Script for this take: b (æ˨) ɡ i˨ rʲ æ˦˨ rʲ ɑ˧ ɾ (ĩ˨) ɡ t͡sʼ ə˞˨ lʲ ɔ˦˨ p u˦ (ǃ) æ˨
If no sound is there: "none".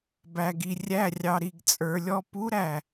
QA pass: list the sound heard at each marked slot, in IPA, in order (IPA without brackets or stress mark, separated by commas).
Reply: æ˨, i˨, ɾ